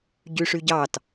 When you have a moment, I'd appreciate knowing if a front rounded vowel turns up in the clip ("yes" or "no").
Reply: yes